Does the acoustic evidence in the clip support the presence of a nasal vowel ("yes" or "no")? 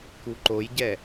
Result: no